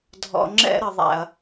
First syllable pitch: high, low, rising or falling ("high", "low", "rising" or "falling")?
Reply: low